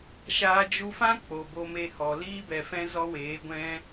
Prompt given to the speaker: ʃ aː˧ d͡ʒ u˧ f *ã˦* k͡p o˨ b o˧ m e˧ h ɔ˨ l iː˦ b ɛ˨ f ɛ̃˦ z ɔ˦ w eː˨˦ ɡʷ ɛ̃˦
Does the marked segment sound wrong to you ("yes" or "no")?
no